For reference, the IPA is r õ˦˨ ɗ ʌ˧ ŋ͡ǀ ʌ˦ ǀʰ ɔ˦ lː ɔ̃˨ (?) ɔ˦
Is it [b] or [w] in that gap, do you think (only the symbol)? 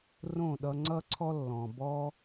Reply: b